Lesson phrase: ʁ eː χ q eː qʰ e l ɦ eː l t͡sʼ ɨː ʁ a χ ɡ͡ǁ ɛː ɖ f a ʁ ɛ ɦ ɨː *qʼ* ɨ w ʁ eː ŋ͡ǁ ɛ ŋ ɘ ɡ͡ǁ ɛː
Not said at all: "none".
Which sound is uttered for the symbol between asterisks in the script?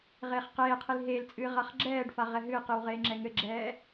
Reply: q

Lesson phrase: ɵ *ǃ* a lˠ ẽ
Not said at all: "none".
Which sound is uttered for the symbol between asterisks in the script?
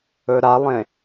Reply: ɾ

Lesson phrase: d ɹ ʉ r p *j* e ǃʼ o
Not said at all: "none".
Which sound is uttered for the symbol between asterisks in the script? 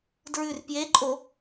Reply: j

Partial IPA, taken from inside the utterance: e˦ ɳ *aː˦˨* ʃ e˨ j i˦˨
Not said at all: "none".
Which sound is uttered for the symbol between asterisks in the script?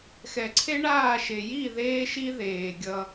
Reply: aː˦˨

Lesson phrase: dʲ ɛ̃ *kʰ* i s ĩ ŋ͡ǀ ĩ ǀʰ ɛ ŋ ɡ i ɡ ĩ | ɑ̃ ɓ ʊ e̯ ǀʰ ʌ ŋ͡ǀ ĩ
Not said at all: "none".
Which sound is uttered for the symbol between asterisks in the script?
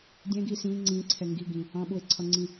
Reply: ɡ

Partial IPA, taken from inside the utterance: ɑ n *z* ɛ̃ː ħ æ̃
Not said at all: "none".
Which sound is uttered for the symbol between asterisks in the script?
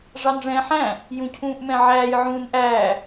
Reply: ʐ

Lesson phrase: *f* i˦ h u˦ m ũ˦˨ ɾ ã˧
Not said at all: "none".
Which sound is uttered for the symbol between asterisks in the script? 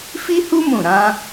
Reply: f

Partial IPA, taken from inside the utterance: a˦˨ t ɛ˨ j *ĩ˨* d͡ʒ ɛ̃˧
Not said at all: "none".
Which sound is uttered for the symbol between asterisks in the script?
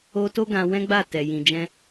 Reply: ĩ˨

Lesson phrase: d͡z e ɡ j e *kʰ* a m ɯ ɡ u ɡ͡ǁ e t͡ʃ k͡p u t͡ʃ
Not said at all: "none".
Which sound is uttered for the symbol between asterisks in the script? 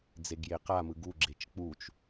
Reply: q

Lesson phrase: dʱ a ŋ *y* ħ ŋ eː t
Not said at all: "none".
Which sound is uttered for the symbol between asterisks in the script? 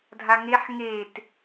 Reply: e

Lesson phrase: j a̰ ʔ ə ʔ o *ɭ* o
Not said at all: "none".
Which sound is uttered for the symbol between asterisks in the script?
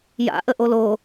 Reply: l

